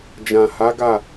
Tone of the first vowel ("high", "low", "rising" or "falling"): low